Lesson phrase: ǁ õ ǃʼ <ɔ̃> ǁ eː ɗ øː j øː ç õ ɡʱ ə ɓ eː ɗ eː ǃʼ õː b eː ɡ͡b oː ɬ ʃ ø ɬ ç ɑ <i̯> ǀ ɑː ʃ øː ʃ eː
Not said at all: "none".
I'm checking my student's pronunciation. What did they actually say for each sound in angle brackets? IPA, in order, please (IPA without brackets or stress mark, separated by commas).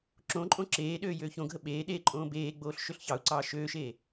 õ, u̯